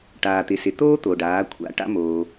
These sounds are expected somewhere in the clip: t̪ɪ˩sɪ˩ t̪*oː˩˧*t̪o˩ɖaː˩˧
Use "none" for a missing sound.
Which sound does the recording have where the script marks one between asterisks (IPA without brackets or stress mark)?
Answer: oː˥